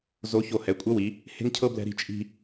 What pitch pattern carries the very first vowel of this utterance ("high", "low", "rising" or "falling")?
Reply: rising